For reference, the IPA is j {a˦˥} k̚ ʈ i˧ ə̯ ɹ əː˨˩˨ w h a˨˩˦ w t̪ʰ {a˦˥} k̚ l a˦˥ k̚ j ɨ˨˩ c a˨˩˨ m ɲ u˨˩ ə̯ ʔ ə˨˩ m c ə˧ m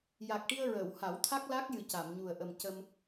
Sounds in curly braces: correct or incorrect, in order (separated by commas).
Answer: incorrect, correct